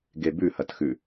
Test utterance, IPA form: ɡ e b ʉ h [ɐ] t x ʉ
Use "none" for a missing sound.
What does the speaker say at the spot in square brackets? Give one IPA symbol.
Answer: ɐ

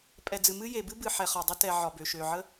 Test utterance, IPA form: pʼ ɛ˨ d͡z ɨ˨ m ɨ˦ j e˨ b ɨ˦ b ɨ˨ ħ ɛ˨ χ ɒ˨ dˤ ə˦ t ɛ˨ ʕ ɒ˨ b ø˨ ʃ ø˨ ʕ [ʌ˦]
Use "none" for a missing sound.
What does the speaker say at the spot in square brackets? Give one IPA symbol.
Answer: ə˦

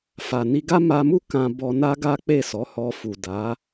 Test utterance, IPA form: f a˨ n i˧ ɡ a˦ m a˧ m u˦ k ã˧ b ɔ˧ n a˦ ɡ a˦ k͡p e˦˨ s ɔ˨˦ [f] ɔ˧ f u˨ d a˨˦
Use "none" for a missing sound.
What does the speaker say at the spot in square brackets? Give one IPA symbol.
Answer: h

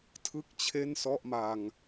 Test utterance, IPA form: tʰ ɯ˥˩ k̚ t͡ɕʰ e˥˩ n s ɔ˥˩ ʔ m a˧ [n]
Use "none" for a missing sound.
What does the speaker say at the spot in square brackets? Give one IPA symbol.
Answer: ŋ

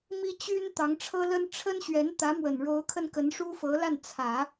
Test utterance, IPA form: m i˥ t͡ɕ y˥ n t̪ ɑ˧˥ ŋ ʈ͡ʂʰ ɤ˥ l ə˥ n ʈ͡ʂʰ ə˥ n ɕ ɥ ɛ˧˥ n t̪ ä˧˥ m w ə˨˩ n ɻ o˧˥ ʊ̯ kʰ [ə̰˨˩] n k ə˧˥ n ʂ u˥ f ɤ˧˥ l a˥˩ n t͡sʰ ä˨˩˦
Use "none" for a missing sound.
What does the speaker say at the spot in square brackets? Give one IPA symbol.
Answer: ə˧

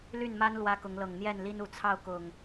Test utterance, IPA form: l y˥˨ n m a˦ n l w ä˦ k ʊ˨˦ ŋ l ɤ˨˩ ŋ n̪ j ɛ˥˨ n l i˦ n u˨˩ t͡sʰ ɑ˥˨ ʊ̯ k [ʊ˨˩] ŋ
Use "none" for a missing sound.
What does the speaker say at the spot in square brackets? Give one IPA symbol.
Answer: ʊ˨˩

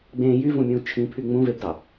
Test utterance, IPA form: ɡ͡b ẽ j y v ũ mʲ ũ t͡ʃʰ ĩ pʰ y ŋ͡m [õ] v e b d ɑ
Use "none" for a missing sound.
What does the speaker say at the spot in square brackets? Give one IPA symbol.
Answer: ũ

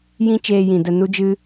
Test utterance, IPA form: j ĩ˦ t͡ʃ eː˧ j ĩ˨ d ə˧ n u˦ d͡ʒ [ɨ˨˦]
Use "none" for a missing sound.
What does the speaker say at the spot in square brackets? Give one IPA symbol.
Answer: ɨ˦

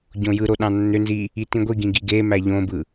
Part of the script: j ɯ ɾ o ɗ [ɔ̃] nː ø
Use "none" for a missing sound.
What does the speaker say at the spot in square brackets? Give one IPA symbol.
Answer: ɑ̃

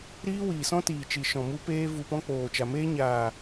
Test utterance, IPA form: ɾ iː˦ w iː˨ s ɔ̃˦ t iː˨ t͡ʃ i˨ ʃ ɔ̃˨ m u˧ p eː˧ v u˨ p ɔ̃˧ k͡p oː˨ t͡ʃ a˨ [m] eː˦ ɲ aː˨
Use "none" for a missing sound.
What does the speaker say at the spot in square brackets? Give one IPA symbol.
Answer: m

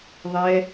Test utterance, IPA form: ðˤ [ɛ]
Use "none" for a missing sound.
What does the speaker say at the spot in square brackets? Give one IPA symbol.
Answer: ɛ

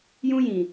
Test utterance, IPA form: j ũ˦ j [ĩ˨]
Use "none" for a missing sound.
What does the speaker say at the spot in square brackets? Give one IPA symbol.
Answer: ĩ˨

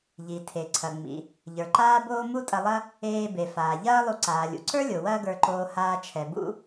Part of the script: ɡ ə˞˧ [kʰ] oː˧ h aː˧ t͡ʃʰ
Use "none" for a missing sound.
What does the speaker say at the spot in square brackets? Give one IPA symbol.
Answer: ǃ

